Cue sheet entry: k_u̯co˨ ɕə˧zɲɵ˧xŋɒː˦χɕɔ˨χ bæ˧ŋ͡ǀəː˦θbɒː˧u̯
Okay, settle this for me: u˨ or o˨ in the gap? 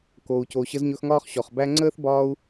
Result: o˨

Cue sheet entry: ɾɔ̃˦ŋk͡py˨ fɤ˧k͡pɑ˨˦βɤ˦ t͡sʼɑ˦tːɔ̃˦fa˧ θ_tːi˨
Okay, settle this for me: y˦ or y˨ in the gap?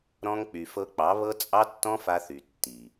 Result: y˨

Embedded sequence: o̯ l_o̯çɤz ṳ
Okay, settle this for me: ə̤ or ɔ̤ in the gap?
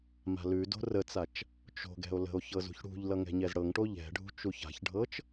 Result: ə̤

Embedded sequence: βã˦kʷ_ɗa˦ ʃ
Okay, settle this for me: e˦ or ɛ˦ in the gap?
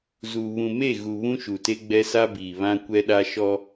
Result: ɛ˦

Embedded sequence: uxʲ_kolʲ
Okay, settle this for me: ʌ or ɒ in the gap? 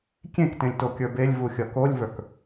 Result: ʌ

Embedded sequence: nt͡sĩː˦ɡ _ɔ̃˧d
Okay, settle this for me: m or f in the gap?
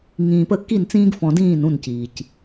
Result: f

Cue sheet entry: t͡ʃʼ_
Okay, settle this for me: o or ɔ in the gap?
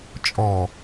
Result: ɔ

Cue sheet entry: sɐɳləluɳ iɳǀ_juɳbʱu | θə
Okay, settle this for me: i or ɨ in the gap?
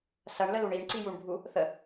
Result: i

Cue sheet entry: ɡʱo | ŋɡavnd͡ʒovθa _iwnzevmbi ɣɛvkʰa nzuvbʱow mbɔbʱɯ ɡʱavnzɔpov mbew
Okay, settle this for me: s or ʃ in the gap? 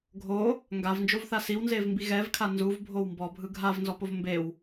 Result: s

